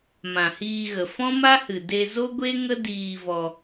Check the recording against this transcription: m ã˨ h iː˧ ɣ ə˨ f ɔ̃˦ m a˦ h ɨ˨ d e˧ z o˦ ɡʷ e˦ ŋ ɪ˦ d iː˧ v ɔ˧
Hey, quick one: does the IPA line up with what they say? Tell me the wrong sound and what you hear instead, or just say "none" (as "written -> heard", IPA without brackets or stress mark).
ɪ˦ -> ə˦